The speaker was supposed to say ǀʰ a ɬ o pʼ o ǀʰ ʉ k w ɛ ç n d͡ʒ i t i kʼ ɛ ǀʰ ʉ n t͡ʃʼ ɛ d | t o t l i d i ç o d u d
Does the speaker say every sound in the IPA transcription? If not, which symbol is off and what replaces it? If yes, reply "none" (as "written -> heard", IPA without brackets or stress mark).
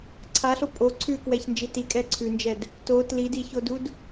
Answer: t͡ʃʼ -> d͡ʒ